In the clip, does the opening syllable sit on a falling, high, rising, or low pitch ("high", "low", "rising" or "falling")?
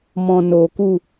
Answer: low